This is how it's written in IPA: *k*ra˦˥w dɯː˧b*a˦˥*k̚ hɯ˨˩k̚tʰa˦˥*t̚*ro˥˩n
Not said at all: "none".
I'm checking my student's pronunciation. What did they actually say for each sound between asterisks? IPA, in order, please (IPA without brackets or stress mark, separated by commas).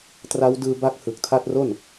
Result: t, a˦˥, t̚